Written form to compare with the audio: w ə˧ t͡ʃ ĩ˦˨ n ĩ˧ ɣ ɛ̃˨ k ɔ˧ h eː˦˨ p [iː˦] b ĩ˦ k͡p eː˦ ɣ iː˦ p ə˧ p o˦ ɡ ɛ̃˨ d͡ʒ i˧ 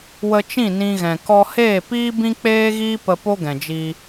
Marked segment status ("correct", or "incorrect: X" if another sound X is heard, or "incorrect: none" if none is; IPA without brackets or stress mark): correct